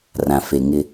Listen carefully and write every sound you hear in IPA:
rã˨fe˨ ŋɪ˦

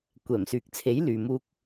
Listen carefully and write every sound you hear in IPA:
kʷɛː˨˩msyː˨k̚t͡sʰe˨˥j lyː˨muː˧k̚

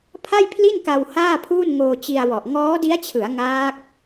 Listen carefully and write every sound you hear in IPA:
pʰa˥˩jpʰli˥˩nka˧w haː˥˩pʰuː˥˩n ŋoː˧t͡ɕi˧a̯wɔ˨˩ʔ ŋɔː˦˥di˦˥a̯t͡ɕʰɯ˩˦a̯ ŋaː˦˥k̚

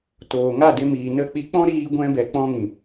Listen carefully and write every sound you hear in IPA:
toː˨ŋa˦˨ de˧miː˨ nə˦˨k͡pi˦ k͡pɔ̃˦ɾiː˧ɡʷɛ̃˧bɛ˨ k͡pɔ̃˦ŋĩ˨

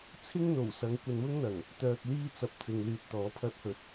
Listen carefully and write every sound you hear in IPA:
t͡sʰɪ˥ŋn̪o˨˩wsɐ˨˧ŋ kʷɐ˧nwʊ˥ŋn̪ɐ˨˩ŋ | t̪œː˧k̚liː˥t͡sɐ˧p̚ t͡sɪ˧ŋlyː˧t̚t̪ɔː˨˥ pʰɐ˥t̚hɵ˧t̚

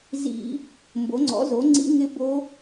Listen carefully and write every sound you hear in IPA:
zḭ˧˩˧ | mbo˩˥ŋ͡ǀɔ̰˩˥ zo˩˥ŋ͡ǀḭ˧˥ ŋɪ˧˥ bo˧˥

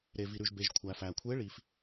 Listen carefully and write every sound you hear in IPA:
ɾe˨vi˨ɾʉ˨ʒbe˨ʒ kʷʰæ˨fæ˨ kʷʰe˧˥ɭi˨f

